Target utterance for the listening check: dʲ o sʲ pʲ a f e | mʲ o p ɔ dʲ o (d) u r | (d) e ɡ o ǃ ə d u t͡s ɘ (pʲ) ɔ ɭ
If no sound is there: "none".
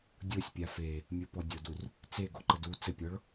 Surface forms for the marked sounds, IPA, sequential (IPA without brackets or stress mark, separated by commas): d, t͡s, pʲ